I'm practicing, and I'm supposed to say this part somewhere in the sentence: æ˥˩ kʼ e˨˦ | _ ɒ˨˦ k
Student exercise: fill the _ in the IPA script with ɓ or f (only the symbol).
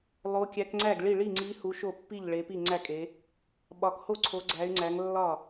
ɓ